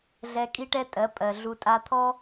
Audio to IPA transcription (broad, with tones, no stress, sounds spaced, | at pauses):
ɮ ɛ˧ kʼ i˦ ʈ ɛ˦ tʼ ɜ˨˦ pʼ ɜ˨ ɮ u˧ tʼ a˧ t̪ʰ ɔ˦